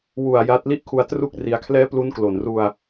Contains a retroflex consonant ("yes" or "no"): no